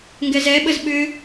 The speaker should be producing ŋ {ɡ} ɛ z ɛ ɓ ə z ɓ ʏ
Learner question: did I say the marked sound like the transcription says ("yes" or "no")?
yes